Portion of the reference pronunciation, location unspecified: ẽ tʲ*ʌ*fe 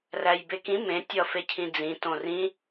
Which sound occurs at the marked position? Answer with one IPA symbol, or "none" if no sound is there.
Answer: ʌ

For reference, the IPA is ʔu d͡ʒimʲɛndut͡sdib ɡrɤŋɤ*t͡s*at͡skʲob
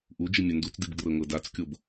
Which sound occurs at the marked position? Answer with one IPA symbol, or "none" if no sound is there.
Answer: d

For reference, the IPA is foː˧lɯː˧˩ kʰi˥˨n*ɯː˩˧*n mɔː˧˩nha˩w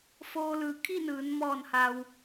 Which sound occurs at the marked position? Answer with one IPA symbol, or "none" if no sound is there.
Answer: ɯː˩˧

